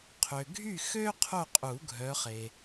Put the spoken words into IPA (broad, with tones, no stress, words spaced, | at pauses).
qʰø˨ɡʱy˥˨xø˥ qʰo˥˨qʼu˨˩˦ɡʱœ˨˦χe˨